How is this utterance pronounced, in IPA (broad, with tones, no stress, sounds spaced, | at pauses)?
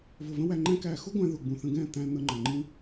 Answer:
v ʊ˨ v ə̃˦ w æ˧ ŋ͡ǃ æ̃˦ k æː˧ x ʊ˦ ɡʷ æ̃˧ ð ʊ˨ ɡ͡b ũ˨ θ ə̃˧ ɡ ɛ̃ː˦˨ t̪ æ̃˦ n̪ ə˧ ŋ͡ǃ ʌ˨ ŋ͡ǃ ĩ˦